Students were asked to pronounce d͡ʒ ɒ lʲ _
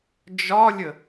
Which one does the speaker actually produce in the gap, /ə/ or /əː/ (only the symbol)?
ə